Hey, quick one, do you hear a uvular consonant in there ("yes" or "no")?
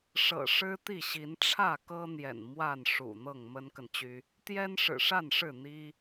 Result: no